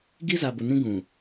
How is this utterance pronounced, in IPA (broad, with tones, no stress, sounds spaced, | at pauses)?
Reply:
ɡ i˦ z a˨ b ʊ˨ n ĩ˦ ɡ ũ˨